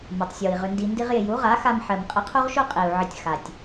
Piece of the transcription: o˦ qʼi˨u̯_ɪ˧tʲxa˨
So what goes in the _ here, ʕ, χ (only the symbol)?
ʕ